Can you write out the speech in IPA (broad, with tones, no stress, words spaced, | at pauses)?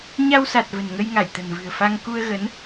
ɲa˧wsa˨˩t̚ və̤˨˩nŋə˧jŋa˧˩j t̪ə̤˨˩nvɨ̤˨˩ə̯ fa˧ŋ ku˧ə̯ɣə˨˦n